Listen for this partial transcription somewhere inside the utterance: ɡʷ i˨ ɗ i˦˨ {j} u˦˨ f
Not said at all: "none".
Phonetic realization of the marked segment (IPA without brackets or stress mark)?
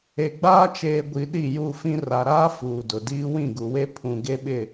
j